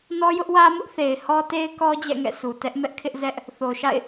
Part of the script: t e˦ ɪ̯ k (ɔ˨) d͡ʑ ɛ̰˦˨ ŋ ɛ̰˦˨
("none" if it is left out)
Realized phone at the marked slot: ɔ˦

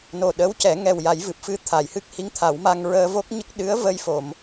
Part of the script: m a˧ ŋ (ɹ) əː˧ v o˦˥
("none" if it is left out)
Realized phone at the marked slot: ɹ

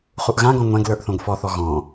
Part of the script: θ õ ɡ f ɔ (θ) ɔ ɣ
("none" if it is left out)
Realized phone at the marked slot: θ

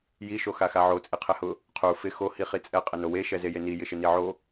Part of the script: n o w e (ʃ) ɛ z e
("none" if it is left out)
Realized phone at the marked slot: ʃ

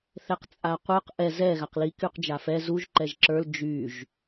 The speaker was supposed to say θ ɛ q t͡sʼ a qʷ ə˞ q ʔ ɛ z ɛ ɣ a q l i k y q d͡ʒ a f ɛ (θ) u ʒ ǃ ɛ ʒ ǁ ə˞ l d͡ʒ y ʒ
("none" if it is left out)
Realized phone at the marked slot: z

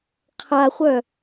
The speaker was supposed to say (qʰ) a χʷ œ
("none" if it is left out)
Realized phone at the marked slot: qʰ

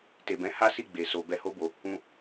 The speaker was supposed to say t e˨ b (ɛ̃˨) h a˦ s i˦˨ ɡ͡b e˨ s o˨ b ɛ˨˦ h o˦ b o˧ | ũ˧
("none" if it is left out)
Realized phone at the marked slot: ɛ̃˨˦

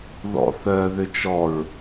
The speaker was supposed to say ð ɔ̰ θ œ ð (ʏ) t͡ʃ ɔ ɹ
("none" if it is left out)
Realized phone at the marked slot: ʏ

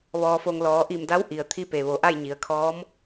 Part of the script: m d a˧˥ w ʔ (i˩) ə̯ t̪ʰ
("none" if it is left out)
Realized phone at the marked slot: i˩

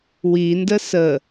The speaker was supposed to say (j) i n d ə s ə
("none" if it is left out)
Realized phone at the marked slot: w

